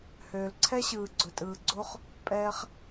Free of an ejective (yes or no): no